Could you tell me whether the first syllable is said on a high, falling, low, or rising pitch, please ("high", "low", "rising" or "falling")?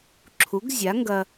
rising